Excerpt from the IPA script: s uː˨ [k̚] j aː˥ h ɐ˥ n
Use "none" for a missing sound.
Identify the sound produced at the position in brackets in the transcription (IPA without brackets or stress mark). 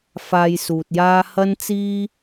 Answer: t̚